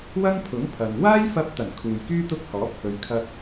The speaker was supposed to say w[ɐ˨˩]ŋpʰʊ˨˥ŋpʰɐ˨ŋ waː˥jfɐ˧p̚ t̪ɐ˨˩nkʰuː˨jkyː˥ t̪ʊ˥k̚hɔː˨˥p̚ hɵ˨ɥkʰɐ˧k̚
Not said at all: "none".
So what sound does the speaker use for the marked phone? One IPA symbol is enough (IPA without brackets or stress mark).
ɐ˥